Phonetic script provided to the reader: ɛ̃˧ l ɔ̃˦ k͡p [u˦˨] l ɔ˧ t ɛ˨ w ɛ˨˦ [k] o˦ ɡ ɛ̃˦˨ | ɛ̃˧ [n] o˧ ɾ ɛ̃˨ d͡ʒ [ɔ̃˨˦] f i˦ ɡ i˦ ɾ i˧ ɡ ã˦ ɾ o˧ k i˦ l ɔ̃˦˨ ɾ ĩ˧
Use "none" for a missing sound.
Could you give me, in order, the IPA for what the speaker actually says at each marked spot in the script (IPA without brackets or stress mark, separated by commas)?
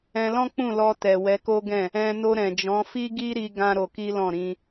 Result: ũ˦˨, k, n, ɔ̃˨˦